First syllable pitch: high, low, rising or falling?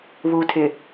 low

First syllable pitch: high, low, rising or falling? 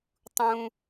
high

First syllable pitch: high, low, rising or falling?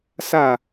falling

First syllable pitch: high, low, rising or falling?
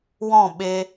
falling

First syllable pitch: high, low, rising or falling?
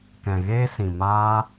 low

